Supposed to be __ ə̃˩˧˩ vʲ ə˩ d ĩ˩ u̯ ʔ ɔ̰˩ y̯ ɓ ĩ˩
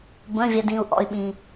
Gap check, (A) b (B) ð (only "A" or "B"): A